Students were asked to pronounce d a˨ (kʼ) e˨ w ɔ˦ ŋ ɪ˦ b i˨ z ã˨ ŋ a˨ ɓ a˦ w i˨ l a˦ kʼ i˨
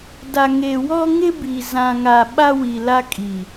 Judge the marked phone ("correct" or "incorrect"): incorrect